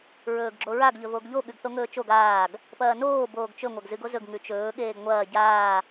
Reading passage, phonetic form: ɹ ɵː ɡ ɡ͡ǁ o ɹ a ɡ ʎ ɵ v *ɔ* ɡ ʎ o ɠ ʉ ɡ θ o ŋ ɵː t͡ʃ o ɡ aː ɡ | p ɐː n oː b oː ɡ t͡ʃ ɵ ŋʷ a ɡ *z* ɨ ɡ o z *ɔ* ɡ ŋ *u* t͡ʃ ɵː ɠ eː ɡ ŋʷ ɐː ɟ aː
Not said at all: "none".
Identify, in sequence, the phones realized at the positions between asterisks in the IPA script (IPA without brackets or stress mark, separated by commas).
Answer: o, z, ɵ, ʉ